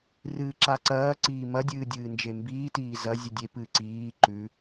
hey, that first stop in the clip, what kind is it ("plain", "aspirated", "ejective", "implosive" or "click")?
click